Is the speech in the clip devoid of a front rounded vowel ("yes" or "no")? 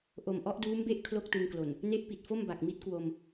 yes